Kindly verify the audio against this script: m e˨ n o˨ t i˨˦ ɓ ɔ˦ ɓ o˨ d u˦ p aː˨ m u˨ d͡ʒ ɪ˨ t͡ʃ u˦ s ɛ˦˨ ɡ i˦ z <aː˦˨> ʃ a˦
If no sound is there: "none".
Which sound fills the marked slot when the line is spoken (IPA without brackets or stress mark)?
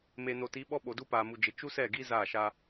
aː˦˨